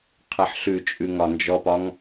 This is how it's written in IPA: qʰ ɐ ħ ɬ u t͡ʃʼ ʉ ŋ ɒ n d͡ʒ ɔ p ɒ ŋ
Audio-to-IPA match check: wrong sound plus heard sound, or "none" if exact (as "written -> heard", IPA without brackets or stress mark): u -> ʉ